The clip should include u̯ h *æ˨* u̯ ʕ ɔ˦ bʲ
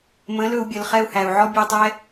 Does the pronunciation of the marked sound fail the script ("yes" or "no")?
no